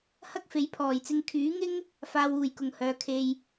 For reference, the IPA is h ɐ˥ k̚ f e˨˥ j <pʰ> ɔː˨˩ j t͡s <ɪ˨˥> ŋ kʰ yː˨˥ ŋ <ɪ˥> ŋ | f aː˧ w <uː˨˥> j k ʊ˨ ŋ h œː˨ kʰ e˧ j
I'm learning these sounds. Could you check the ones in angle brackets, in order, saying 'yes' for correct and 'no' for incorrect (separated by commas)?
yes, no, yes, no